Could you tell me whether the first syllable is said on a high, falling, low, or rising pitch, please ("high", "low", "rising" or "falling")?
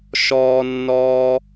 high